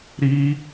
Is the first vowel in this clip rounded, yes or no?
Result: no